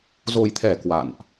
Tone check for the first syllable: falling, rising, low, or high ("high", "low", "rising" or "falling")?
low